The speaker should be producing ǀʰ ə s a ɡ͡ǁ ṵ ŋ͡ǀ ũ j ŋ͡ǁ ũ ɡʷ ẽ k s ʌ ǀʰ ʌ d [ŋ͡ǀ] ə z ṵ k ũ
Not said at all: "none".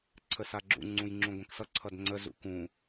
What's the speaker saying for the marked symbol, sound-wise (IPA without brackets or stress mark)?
ŋ͡ǀ